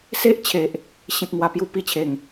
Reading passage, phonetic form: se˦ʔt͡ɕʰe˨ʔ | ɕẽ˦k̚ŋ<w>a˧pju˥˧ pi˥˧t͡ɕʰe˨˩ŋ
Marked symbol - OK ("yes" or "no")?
yes